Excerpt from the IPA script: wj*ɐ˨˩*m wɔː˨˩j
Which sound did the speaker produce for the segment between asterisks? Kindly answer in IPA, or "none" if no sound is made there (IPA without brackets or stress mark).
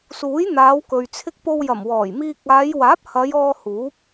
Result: ɐ˨˩